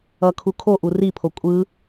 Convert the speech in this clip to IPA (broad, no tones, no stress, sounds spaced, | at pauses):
ʌ kʰ u kʰ o ʔ u r i pʰ o kʷʼ ɯ